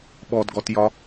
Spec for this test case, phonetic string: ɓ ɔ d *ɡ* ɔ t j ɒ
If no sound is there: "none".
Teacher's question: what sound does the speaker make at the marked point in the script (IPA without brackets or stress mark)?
ɡ